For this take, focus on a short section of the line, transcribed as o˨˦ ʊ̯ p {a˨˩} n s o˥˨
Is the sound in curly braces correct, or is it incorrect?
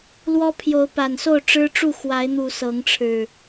correct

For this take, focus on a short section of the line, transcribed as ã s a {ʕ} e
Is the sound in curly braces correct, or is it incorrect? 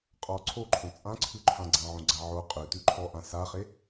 incorrect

